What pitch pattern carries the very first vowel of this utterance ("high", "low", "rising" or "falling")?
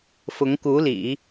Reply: rising